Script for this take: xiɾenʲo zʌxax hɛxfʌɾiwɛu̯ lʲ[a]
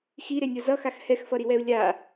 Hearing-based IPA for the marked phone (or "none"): a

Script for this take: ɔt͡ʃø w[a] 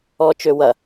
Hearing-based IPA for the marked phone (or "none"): ɐ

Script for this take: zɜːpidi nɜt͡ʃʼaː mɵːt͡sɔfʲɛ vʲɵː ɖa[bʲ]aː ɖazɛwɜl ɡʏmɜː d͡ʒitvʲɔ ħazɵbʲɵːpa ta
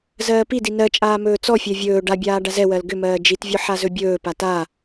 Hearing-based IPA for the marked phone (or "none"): bʲ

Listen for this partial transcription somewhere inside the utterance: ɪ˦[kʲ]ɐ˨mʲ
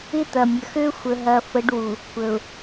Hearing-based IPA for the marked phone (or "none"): t̪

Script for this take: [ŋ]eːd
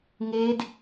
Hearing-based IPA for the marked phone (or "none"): ŋ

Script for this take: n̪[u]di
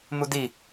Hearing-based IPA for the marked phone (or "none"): u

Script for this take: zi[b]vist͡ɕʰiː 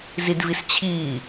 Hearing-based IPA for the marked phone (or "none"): d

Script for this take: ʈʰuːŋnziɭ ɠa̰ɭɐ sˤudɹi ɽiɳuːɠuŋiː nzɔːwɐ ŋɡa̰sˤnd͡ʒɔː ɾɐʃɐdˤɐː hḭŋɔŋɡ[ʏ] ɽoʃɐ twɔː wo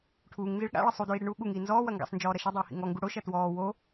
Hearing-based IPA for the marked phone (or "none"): u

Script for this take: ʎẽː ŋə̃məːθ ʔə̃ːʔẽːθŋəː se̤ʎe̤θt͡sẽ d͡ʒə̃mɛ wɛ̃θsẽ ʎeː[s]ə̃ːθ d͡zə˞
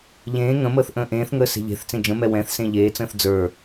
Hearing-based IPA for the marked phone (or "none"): t͡s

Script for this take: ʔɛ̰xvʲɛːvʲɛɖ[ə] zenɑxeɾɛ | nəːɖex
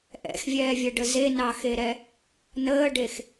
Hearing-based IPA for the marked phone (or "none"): ə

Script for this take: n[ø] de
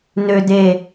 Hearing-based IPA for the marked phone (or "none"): ø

